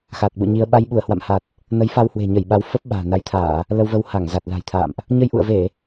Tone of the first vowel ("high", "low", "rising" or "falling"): low